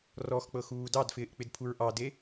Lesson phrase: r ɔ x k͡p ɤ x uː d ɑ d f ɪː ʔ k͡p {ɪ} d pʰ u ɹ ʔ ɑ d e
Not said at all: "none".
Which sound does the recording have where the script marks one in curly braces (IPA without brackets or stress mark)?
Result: ɪ